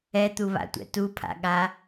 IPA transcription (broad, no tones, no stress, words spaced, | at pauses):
ɛt̪uβa̰tʷɛ̰ tupʰa̰ɠa